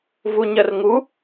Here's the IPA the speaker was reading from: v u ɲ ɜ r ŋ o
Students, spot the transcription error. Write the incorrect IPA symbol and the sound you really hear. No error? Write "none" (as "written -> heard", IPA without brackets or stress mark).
o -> u